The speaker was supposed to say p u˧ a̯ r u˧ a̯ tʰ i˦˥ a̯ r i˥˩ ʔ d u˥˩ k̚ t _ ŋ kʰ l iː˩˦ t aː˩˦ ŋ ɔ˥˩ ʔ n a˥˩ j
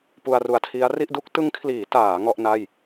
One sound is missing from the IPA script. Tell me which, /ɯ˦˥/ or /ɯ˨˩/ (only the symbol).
ɯ˦˥